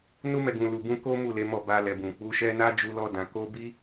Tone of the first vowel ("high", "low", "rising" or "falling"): high